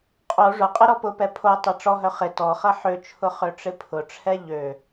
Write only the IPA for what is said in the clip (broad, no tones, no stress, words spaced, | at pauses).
qʼo ʐʊqʼɪ ɾɔpʊpɛ pʰo tˤɛʈ͡ʂɔɦœ χɪ tɔχɐ ħøt͡ʃʰʊ χøʈ͡ʂɪpʰʊʈ͡ʂʰɛ ʎø